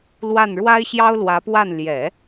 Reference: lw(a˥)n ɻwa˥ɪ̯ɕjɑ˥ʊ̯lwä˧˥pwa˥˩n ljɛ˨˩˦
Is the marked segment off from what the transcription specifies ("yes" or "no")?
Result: yes